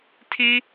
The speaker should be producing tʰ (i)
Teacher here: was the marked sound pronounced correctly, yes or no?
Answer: yes